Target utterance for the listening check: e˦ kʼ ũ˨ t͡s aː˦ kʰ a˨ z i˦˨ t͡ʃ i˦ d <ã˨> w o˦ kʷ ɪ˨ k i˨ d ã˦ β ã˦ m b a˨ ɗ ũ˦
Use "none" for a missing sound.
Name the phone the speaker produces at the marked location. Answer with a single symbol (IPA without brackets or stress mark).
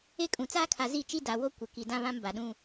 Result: a˨